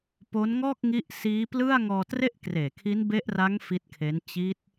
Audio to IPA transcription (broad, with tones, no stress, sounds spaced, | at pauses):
p o˦˥ n ŋ ɔː˥˩ k̚ ŋ i˦˥ ʔ s iː˦˥ p l ɯ˥˩ a̯ ŋ ɔː˧ t r e˥˩ ʔ k r eː˨˩ kʰ i˦˥ n b e˦˥ ʔ r a˦˥ ŋ f i˦˥ t̚ kʰ e˦˥ n t͡ɕ i˦˥ t̚